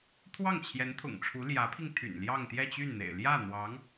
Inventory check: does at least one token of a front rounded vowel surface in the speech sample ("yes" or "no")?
yes